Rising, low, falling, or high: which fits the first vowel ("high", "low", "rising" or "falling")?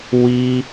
high